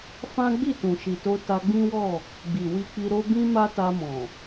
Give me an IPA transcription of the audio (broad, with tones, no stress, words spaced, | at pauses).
fã˦ ɡ͡bi˦˨tũ˨ʃi˨to˧ ta˧ɡ͡bĩ˦wɔ˦˨ | ɡ͡bi˨wi˧k͡pi˧ɾo˦ bĩ˦ma˦ta˧mɔ̃˨